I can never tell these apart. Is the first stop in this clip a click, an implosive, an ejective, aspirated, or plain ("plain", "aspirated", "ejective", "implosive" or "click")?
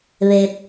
plain